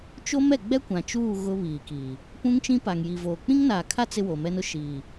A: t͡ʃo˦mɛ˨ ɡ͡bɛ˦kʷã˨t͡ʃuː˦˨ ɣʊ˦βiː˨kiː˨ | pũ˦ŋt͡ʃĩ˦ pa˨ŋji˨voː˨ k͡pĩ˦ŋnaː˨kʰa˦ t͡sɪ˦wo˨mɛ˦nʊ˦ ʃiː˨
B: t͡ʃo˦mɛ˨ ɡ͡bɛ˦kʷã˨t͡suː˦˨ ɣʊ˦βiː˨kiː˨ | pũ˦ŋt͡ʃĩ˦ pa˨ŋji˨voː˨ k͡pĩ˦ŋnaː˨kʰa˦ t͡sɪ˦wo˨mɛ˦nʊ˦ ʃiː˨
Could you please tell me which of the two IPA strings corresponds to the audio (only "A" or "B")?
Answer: A